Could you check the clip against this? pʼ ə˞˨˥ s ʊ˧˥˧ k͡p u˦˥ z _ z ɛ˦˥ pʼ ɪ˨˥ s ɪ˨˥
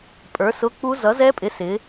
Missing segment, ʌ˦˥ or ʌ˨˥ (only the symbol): ʌ˨˥